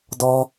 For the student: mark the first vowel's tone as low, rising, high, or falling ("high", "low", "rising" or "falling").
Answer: high